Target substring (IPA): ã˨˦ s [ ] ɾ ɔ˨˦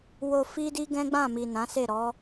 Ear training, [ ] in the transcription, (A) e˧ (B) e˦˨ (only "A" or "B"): B